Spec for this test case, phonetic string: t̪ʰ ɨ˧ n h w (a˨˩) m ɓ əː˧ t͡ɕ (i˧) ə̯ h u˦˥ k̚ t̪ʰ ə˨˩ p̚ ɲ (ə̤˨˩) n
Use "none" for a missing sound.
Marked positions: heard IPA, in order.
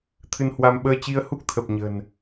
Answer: a˧, i˧, ə̤˨˩

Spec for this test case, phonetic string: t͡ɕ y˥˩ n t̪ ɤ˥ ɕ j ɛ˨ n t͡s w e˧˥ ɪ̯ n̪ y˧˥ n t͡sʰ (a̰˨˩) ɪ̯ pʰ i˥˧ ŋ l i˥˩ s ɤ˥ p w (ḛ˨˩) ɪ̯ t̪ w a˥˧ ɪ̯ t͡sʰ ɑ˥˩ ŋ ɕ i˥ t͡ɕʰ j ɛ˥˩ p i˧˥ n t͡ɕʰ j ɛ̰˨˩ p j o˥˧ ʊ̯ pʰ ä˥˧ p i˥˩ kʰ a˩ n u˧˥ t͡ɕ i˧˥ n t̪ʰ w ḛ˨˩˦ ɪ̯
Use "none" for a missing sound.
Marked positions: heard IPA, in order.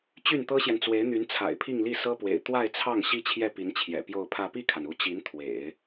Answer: a̰˨˩, ḛ˨˩

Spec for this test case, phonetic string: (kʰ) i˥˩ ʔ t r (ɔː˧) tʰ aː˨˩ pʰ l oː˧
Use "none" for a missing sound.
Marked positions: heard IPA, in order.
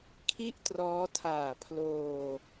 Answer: kʰ, ɔː˦˥

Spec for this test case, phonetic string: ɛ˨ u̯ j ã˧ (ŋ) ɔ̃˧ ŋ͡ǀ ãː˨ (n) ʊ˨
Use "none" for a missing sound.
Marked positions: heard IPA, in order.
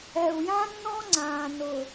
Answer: nː, n

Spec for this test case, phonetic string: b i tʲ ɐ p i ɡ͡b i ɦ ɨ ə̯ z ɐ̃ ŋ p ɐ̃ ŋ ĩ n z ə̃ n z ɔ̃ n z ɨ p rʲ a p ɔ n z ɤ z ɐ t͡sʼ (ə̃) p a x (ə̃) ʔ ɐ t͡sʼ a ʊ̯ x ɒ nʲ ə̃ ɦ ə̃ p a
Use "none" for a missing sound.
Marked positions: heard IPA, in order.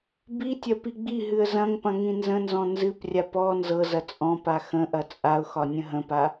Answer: ɔ̃, ə̃

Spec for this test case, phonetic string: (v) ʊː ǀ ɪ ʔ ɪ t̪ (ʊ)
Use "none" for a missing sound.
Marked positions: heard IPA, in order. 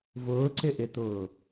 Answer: v, ʊː

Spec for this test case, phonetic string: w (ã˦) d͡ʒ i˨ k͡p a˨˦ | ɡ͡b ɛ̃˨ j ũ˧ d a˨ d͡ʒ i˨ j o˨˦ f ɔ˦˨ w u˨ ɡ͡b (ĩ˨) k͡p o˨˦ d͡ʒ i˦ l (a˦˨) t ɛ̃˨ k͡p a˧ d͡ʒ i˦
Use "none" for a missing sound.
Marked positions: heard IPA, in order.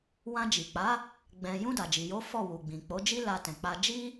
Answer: ã˧, ĩ˨, a˧

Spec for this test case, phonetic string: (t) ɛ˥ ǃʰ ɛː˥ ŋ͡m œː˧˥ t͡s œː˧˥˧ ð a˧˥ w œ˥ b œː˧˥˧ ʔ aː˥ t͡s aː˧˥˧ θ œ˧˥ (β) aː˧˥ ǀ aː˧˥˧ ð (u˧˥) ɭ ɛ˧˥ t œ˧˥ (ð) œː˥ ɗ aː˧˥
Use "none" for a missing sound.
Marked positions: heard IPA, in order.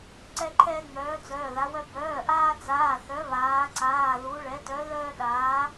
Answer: ǀ, β, u˧˥, ð

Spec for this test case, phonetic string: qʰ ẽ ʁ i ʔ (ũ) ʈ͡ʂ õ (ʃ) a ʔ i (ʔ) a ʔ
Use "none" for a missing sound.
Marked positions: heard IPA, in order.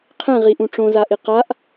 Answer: ũ, z, q

